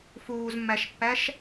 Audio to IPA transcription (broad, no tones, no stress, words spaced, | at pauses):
fuːzmːæʃpːæʃ